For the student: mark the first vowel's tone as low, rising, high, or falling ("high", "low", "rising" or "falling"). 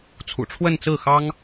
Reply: low